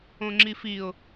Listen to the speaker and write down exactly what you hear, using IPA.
õ ŋ͡ǁ i f i ʊ̯

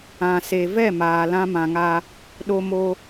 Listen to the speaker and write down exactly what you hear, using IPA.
ã˨ s e˨ v ɛ˦˨ m aː˨ l ã˦ m ã˨ ŋ a˦ | ɗ o˦ m o˦

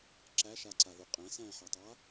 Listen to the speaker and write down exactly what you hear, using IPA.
ǁ æ ʃ a ǀ a ð u qʼ æ̃ s æ̃ː ħ a tˤ a

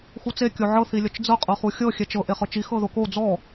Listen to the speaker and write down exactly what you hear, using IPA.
x u t͡s e kʲ o ʕ ɤ θ i lʲ ɔ t͡ʃ d͡z ɤ qʼ ɤ χ u xʲ ɤ xʲ ɛ t͡ʃ ɤ ʔ e χ ɤ t͡ʃ i x ɤ ð o k o d͡z ɔ

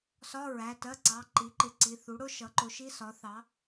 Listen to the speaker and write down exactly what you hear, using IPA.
s ɒ˧˥˧ ɹ æ˩˧˩ t ɜ˧˥˧ ǀ ɑ˩˧˩ ǃ i˩˥ ǃ ɪ˩˥ ǀ i˩˧˩ θ u˩˥ ɽ ʊ˧˥˧ ʃ ʌ˩˥ ǃ ʊ˩˥ ʃ i˧˥˧ s ɒ˩˥ θ ɑ˩˥

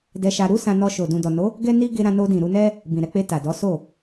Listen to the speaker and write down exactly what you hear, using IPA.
d ɛ˧ ʃ a˧ ɾ u˦ s ã˧ n ɔ˧ ʃ o˨ d ũ˨ d ɔ˨ n o˨˦ | ɡ ɛ˦ n i˦ ɡ e˧ ɾ ã˧ n o˧ d ĩ˨ ɾ u˨˦ n ɛ˦ | b ĩ˨ ɾ ɛ˧ k͡p e˧ t a˨ d ɔ˨˦ s o˦˨

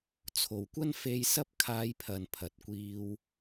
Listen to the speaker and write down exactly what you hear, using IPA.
t͡sʰ o˨ w kʷ ɐ˥ n f e˧ j s ɐ˥ p̚ kʰ aː˧ j pʰ ɐ˨ n pʰ ɐ˨ t̚ kʷ iː˧ w

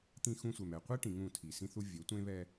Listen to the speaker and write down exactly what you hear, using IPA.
t̪ ĩ˦ x ũ˦ sʷ ɛ˨ m ɛ˨ qʷ e˦ ʈ ĩ˨ ŋ ũ˦˨ tʰ i˨ s ĩ˦ θ u˦ vʲ ɘ˨˦ tʷ ẽ˦ β ɛ˦

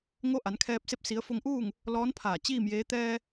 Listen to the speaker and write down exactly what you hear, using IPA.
ŋ o˧˥ ʔ a˩˧ n kʰ ɛː˧ p̚ s e˥˨ p̚ s i˧˥ ə̯ f o˧ ŋ ʔ uː˥˨ ŋ | l ɔː˧˥ n pʰ aː˧˩ t͡ɕ iː˥˨ m j eː˧˥ t̪ ɛː˧

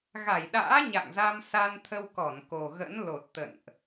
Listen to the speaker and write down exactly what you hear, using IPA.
ɣ a˧˩ j ɗ a̰ː˧˥ ɲ a̰˧˨ ŋ z a˧ m s a˧ n t̪ʰ ə˧ w k ɔ˧˩ n k o˨˩ ɣ ə̰˧˥ n l o˨˩ t̚ t̪ ə̰˧˨ n ʔ

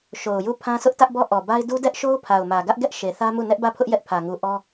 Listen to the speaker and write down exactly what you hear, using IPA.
ʃ o˨ ʊ̯ j u˦˨ pʰ ã˦ sʰ ʊ˦ ʔ t ä˦ ʔ b ɔ˦ ʔ ɔ˨ b a˦ ɪ̯ d u˦ d ɛ˦ ʔ ʃ o˦ ʊ̯ pʰ a˨ ʊ̯ m ä˨ ɡ ä˦ ʔ ɡ ɛ˦ ʔ ʃ e˨ θ ä˦ m u˦˨ n ɛ˦ ʔ b ä˦˨ pʰ ʊ˦ ʔ j ɛ˦ ʔ pʰ ä˨ ŋ u˨ ʔ ɔ˦

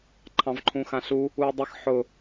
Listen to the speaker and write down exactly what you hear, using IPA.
ǃʰ ɑ̃ v ǃʰ ũ x ã ɬ u | u ɐ̯ dˤ ɪ x ħ ʊ

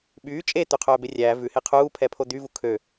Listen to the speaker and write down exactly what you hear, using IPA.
ɓ yː t͡ʃʼ e t̪ ʉ qʰ œː b e rʲ æː v ʉ h e qʰ uː pʰ ɛ pʰ o d̪ y v u kʰ ø

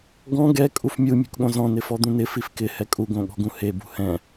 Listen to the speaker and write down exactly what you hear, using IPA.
ɡ ɔ̃ ɡ ɛ kʼ u f mʲ u mʲ ṳ k ɠ õ z ɔ̃ n ɪ f ɔ d̪ ũ n ɪ f i f k ɪ h ɛ kʼ u ɡ õ ɠ ɔ̤ ɡ ũ h e b ṳ h ɛ̃

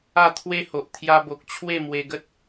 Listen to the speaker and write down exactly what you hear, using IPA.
a˥˧ t̪ʰ w e˦ h o˨ ʔ t̪ʰ j a˧ b o˨ k̚ t͡ɕʰ w e˥˧ m w e˧ ɡ ə˦ t̚

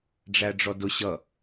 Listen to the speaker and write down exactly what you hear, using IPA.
ɖ͡ʐ æ ɖ͡ʐ ɔ d ʊ ɕ ʌ

